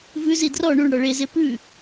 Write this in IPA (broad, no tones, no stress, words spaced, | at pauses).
vʉzi drɔ ɳuɳɽɔ ɭeze pʉ